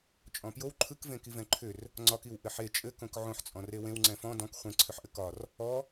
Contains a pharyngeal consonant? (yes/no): yes